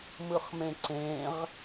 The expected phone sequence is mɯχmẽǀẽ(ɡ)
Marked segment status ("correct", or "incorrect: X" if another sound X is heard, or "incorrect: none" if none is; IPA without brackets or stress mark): incorrect: ʁ